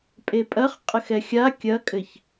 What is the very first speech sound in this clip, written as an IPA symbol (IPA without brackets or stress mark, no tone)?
pʼ